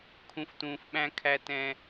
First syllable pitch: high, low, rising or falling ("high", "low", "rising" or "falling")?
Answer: low